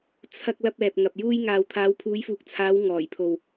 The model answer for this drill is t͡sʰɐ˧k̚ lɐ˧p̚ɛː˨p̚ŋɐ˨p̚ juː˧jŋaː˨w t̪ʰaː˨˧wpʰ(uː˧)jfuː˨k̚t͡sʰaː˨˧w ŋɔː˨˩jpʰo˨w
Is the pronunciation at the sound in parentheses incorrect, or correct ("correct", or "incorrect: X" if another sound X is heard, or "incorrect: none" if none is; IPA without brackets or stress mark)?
incorrect: uː˨˧